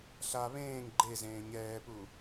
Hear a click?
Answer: yes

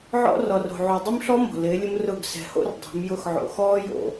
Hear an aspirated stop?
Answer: no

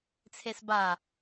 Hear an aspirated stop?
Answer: yes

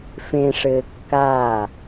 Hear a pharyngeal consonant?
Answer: no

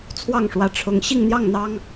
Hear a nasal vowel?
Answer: no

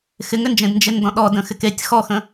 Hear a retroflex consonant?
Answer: no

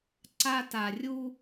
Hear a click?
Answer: yes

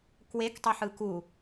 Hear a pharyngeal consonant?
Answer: yes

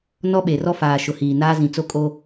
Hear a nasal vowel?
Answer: yes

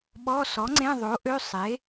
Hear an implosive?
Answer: yes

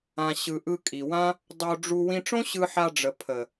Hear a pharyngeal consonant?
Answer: yes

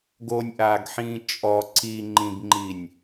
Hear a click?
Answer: yes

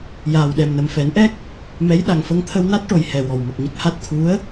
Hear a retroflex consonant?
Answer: yes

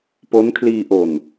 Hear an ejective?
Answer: no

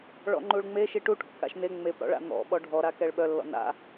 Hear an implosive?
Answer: yes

